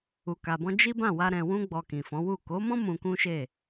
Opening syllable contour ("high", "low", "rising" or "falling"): low